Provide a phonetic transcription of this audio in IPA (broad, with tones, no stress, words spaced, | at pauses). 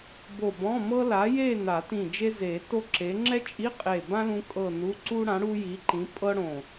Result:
bo˧˩bɔ̃˧˥˧ mɤ˥ la˨˥je˥˧ na˨˩˦tĩ˧˩ d͡ʒe˥ze˨˩˦to˥ ǁe˨˥ ŋ͡ǁɛ˥t͡ʃʼi˧˥˧ qʼe˧˩bã˥ lũ˥kʼɤ˥˧nu˧˥˧ ǀu˥ɽã˨˥ ɽu˥ji˨˥ǃĩ˨˥ pʼɤ˥ɽõ˧˩